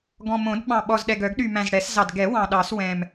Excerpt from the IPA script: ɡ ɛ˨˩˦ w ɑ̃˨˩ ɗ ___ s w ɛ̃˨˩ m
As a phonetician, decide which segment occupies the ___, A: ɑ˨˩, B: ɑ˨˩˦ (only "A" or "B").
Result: B